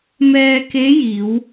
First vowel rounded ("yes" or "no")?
no